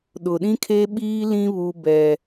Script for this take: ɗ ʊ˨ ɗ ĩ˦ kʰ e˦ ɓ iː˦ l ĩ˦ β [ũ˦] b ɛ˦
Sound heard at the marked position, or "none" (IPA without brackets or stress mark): u˦